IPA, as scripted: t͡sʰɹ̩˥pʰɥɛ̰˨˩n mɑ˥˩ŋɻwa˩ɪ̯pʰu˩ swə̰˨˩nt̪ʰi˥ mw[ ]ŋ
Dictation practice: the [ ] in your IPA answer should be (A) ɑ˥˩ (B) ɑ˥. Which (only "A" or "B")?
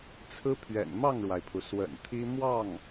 A